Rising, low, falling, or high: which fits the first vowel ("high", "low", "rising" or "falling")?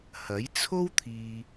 rising